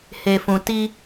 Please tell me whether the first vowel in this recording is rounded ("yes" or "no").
no